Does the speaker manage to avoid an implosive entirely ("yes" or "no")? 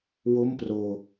yes